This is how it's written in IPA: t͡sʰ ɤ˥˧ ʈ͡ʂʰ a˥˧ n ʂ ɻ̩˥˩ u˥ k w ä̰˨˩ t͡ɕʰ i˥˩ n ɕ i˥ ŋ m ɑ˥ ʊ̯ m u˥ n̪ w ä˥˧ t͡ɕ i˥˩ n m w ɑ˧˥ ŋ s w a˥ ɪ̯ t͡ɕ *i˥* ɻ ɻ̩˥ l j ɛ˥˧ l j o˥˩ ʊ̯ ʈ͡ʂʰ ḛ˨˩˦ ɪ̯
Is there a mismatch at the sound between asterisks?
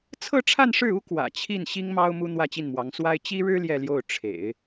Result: no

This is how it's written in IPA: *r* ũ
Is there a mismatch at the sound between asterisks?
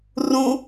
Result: no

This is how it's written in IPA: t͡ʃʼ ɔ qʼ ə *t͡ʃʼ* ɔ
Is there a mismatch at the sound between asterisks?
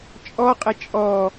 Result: no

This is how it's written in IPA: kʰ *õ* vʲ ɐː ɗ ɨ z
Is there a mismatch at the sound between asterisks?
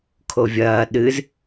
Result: yes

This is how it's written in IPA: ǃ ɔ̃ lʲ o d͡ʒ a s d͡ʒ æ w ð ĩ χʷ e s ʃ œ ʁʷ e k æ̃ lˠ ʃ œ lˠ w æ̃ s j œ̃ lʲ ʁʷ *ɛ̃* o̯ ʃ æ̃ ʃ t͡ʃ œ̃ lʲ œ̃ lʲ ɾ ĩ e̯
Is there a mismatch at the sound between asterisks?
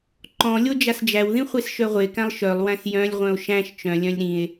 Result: yes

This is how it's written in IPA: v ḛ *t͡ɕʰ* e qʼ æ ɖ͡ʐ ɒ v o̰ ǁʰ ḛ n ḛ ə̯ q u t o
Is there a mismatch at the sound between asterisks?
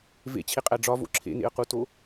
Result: no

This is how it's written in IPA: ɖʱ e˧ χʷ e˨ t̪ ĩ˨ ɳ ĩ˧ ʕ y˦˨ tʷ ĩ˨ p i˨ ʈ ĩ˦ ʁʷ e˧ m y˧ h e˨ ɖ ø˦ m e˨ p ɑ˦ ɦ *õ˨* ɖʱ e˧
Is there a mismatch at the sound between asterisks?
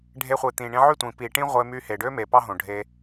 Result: no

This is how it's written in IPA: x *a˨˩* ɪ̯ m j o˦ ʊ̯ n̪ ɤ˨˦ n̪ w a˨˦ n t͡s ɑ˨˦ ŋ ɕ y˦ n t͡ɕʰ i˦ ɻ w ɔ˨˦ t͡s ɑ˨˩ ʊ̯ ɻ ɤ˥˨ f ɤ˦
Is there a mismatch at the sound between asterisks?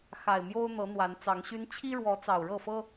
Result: no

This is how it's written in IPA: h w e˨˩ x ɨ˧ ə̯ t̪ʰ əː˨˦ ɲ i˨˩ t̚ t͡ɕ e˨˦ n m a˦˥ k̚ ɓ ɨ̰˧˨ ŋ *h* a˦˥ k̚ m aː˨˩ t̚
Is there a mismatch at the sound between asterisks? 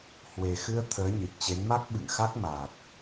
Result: yes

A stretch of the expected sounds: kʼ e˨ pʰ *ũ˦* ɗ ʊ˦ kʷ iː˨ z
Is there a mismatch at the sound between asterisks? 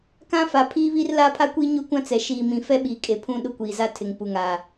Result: yes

